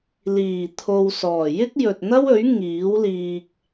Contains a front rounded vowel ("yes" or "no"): no